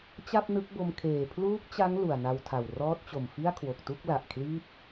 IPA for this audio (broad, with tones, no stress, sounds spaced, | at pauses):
t͡ɕ a˥˩ p̚ n ɯ˦˥ k̚ b o˧ m kʰ eː˨˩ pʰ l uː˦˥ k̚ t͡ɕ a˦˥ ŋ l u˨˩ a̯ n a˧ w tʰ a˨˩ w r ɔː˦˥ t̚ t͡ɕ o˨˩ m f i˥˩ a̯ kʰ w o˨˩ k̚ t u˥˩ k̚ l a˨˩ ʔ kʰ l iː˥˩ p̚